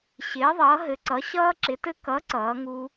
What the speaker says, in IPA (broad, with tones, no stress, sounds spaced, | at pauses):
ɕ ɪː˨˥ ðˤ ʌː˨˥ ɦ ɘ˨˥ ǀ ʌ˨˥ ɕ ʌː˦˥ ǁ ɪ˨˥ t ɘ˦˥ k ʌ˨˥ ǀ ʌː˨˥ ŋ u˦˥